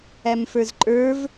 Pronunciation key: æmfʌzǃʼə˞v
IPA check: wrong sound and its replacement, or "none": ʌ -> ə˞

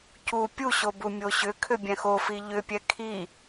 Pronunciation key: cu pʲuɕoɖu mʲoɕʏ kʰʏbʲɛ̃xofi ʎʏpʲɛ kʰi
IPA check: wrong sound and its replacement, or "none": ɖ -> b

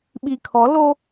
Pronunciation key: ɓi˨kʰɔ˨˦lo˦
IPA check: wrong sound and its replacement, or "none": none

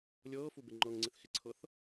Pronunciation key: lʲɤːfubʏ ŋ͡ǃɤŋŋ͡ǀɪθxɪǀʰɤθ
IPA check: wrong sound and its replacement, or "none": ʏ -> ɪ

